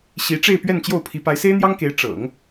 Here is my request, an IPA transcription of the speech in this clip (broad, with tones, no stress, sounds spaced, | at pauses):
ɕ i˧˥ ʈ͡ʂ e˥˧ ɪ̯ p ɥ ɛ˥˧ n t͡ɕ j o˥˩ ʊ̯ pʰ i˧˥ p a˧˥ ɪ̯ s e˥ ɪ̯ n̪ j ɑ˥ ŋ k e˧˥ ɪ̯ ʈ͡ʂ ɤ̰˨˩˦ ŋ